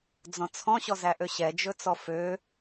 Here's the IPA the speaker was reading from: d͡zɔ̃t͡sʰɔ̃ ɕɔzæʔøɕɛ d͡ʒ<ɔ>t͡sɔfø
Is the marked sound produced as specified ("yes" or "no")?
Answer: no